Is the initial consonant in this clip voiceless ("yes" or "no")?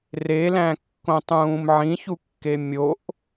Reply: no